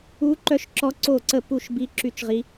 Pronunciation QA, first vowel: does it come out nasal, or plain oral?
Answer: oral